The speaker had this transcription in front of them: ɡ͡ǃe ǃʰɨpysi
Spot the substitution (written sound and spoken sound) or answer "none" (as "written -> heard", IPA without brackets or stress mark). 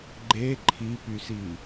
ɨ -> i